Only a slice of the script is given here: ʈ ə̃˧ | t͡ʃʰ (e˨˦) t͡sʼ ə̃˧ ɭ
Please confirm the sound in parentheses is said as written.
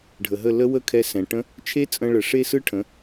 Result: no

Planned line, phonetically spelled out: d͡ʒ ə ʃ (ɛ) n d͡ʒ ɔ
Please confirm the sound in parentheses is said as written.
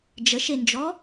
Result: no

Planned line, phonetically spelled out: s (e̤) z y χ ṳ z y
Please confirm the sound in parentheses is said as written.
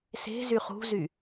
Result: yes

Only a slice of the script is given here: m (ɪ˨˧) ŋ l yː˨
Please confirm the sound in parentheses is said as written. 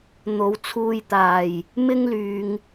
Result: no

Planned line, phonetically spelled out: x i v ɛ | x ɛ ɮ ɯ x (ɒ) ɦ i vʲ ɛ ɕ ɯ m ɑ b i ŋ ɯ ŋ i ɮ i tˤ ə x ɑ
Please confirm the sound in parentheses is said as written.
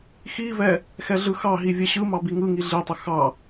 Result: no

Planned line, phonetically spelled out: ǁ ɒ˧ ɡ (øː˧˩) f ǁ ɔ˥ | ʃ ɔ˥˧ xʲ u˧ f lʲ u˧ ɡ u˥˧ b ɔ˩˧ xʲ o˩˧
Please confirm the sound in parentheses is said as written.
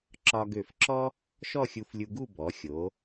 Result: no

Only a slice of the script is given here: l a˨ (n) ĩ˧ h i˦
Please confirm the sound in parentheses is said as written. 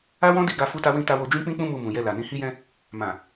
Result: yes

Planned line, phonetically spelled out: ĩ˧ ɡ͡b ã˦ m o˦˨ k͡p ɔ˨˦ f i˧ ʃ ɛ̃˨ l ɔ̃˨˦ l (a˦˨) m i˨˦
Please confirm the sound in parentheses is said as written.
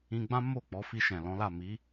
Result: yes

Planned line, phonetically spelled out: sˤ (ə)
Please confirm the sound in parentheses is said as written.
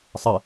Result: yes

